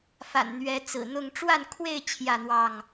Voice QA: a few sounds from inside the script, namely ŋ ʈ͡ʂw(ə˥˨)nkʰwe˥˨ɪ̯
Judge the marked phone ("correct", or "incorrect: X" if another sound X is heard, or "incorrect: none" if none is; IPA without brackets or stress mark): incorrect: a˥˨